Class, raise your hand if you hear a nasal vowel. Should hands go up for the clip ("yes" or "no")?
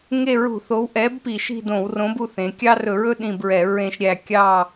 yes